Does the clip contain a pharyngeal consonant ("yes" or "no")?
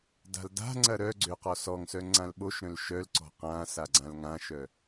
no